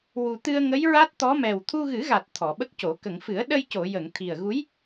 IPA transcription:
w u˨˩ t̪ ɨ˧ ə̯ ŋ ə˧˥ j ɹ a˦˥ t̚ t̪ ɔ˧˥ m ɛ˨˩ w t̪ʰ u˧ ɣ ɨ˨˩˦ ɣ a˨˩ t̚ t̪ʰ ɔ˨˩˨ ɓ ə˦˥ k̚ c o˨˩˦ k ə˨˩˨ ŋ f ɨ˨˩˦ ə̯ ɗ ə˧ j c o˨˩˨ j ə˨˩˨ ŋ t̪ʰ i˨˩ ə̯ ɣ u˧˥ j

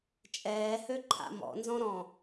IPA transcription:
t͡ʃʼ ɛː h ø ǃʰ a̰ m ɔ̰ n z ɔ̃ ɾ ɔ̃

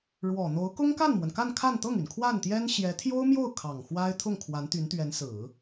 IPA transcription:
ɻ w ɔ˨˩ n̪ o˧˥ ʊ̯ k ʊ˥ ŋ k a˥˩ n m w ə˩ n k a˥˧ n kʰ a˥˧ n t̪ ɤ˥˩ ŋ y˩ n kʰ w a˥˩ n t̪ j ɛ˥ n ɕ j ɛ˧˥ t̪ʰ j o˥ ʊ̯ m j o˥˩ ʊ̯ kʰ ɑ˨˩ ŋ x w a˥ ɪ̯ t̪ʰ ʊ˥˩ ŋ kʰ w a˧˥ n t̪ y˧˥ n t̪ ɥ ɛ˧˥ n s ɹ̩˨˩˦

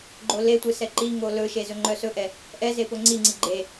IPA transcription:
ɡ͡ǃ o l e tʷ e s ɛ ǃ i ŋ o l ɵ ʃ e z ɵ ŋ͡ǃ œ s ɵ ʔ ɛ | ʔ ɛ z e p o ŋ͡ǀ i ŋ͡ǀ i ɡ͡ǃ e

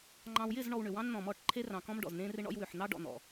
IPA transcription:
ŋ͡ǃ ɑ̃˨ w j ɪ˦˨ z ɳ ɔ˨ w ɳ ʏ˨ w ɑ̃˦ n n̪ ɔ̃˨ m ɔ˦˨ ʈ ǃʰ e˦ r ɑ̃˨ k ɔ̃˦ m ɖ ɔ̰˨ z n ẽ˦ r ɪ˦ ɳ ɔ̰˦ j w ʏ˨ ħ n̪ ɑ˦ ɖ ɔ̰˨ n̪ ɔ̰˨

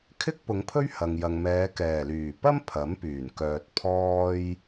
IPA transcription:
kʰ ɪ˥ k̚ p ʊ˨˧ ŋ pʰ ɵ˥ ɥ h ɐ˨ ŋ j ɐ˨ ŋ m ɛː˨˧ k ɛː˨˩ l yː˨˩ p ɐ˥ m pʰ ɐ˨˥ m p yː˨˩ n k œː˧ t̚ pʰ ɔː˥ j

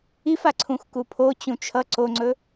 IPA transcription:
i f a ǀʰ ũ x k u pʰ o t͡ɕ ũ t͡ʃʰ ʌ ǀ o ŋ͡ǀ ɵ

